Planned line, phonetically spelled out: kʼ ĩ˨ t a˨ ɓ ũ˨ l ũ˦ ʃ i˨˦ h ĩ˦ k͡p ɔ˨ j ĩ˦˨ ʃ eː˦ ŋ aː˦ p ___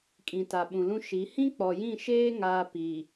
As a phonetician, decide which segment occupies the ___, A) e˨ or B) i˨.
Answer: B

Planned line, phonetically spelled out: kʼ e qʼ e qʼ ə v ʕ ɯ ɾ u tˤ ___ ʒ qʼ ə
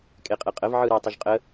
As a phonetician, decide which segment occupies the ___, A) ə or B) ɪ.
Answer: A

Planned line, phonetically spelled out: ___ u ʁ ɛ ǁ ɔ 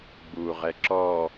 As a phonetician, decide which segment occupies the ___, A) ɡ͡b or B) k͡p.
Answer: A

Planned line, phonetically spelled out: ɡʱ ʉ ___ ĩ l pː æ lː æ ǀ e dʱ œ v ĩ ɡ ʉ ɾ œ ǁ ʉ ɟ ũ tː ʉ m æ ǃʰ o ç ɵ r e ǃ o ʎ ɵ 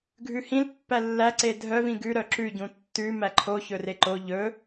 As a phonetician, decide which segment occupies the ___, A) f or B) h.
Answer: B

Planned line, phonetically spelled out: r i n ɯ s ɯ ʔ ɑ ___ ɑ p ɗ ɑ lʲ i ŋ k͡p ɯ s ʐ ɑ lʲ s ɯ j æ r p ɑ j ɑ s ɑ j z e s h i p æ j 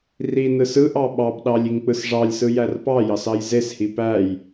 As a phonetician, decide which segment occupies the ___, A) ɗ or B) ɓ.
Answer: B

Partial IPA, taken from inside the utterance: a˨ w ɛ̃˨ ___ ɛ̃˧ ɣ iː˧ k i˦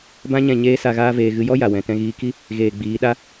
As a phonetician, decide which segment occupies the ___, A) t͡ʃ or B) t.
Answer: B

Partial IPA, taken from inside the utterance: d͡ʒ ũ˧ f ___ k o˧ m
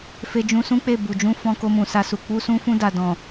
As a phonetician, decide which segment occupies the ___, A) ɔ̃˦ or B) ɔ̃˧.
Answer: B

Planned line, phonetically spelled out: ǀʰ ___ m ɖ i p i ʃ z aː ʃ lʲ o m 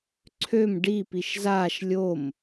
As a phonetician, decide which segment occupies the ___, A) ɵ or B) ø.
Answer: B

